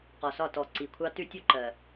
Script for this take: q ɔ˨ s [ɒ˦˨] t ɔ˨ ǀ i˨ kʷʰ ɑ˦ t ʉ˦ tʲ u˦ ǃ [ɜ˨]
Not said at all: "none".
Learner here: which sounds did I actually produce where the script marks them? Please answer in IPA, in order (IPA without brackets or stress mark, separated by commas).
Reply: ɒ˦˨, ɜ˨